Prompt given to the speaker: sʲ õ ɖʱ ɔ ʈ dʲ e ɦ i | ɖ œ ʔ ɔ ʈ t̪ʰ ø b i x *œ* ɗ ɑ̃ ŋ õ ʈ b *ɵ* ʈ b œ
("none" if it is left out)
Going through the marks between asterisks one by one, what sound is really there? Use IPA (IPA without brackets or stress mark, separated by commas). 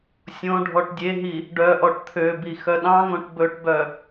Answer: œ, ɵ